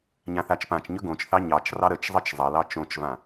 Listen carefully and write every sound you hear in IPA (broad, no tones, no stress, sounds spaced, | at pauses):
ɲ ã θ a t͡ʃ p ã t͡ʃ ɲ ɵ ɡ õ t͡ʃ θ ɑ ɲ ɑ t͡ʃ r ɑ ɾ ə t͡ʃ zˤ ʌ t͡ʃ zˤ ʌ l ɑ t͡ʃ õ t͡ʃ v ã